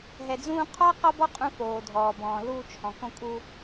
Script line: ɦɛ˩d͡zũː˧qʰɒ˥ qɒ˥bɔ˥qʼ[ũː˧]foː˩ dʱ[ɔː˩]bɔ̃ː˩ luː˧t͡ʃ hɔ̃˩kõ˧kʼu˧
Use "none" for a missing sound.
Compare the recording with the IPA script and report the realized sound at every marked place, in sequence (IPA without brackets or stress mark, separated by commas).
ũ˧, ɔː˩